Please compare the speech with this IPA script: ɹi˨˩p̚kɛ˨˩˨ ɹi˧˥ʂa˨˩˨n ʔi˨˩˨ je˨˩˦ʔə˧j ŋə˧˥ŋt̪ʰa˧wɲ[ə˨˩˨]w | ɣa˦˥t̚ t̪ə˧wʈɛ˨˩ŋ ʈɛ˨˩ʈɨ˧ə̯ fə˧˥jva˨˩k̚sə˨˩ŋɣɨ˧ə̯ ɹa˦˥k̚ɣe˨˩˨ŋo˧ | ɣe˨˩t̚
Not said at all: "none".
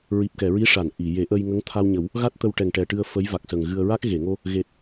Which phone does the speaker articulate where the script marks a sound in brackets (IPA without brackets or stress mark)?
ə˨˩˦